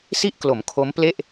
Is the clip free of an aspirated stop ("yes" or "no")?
no